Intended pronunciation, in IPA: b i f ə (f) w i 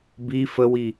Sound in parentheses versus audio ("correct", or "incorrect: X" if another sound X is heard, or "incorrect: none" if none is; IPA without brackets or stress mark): incorrect: none